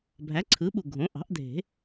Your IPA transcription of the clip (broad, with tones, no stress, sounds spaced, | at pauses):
bʱ æ˩˥ ǀʰ ɯ˩˥ ɓ u˨˩ ɡʱ õ˩˥ ʔ ɑ̤˩˥ ʔ dʱ e̤˨˩˦